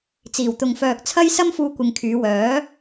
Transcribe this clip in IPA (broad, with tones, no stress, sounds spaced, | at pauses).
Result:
t͡s iː˨˩ w t̪ ʊ˨ ŋ f œː˨ k̚ t͡sʰ ɐ˥ j s ɐ˥ m f uː˧ kʷ ɪ˨ ŋ kʰ yː˨˧ w œː˨˥